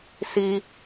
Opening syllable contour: high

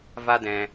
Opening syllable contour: high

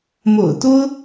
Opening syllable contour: low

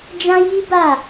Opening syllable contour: high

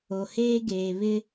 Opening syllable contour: low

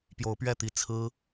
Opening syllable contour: rising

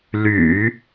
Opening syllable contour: low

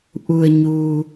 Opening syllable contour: low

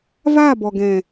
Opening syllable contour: falling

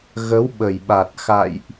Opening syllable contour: rising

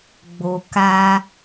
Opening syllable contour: low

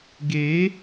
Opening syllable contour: rising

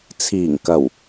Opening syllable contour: low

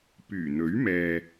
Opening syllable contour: low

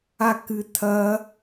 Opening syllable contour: falling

